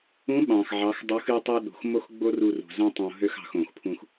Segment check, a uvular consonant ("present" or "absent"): absent